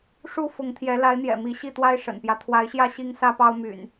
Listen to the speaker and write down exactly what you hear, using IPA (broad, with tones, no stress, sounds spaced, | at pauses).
ʂ u˥˨ f ʊ˨˦ ŋ t̪ʰ j ɛ˨˦ l a˨˦ ɪ̯ n̪ j ɛ̰˨˩ m i˨˦ ɕ i˥˨ t̪ w a˦ ɪ̯ ʂ ə̰˨˩ n p j ä˦ t̪ʰ w a˨˦ ɪ̯ ɕ j ä˥˨ ɕ i˦ ŋ s ä˦ p ɑ˦ ʊ̯ m y̰˨˩ n